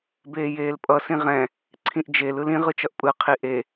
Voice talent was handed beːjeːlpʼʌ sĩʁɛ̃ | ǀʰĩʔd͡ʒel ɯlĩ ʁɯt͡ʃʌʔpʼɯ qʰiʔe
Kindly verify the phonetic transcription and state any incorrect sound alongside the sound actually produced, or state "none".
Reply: none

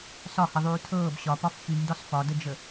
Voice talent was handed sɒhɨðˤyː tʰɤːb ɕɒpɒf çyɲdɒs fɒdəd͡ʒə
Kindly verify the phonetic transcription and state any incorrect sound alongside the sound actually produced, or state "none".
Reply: ɨ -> ə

